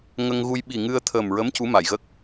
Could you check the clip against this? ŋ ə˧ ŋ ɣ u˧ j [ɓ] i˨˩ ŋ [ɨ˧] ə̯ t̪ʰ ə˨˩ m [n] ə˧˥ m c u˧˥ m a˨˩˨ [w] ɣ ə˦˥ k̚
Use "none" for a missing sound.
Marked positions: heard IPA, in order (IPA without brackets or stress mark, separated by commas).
ɓ, ɨ˧, ɹ, j